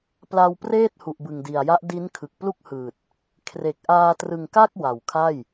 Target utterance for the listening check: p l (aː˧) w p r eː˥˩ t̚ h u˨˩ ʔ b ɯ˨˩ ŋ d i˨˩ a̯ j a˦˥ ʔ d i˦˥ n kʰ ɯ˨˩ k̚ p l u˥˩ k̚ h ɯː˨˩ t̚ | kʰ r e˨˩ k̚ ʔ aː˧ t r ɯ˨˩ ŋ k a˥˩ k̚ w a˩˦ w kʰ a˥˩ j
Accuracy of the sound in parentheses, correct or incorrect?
incorrect